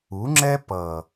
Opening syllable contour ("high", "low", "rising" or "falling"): rising